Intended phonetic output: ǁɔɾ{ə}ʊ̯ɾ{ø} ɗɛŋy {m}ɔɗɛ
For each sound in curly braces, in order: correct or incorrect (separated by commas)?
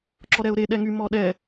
incorrect, incorrect, correct